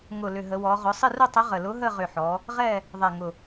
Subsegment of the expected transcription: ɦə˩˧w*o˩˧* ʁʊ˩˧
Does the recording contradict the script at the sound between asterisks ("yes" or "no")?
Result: yes